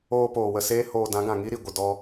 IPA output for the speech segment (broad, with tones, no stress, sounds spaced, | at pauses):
oː˧ p oː˨ w ə˨ s eː˦ h oː˧ d ã˨˦ ɡ ã˨ ŋ i˦ ɾ i˨ ɡʷ ə˨ d ɔ˧